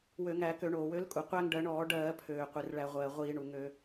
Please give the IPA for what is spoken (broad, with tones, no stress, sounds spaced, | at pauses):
w ø˧˩˧ ŋ æ˧˩˧ k ø˧˩˧ ɳ oː˩ w ø˨˥ l kʼ u˩ qʷ æ˥ ŋ ɖ ɜ˨˥ ɳ ɔː˧˩˧ ɖ ɜː˧˩˧ pʰ øː˩ qʷ i˩ r ɭ æ˧˩˧ ʁʷ ɜː˩ ʁʷ iː˧˩˧ ɳ u˩ ŋ ø˧˩˧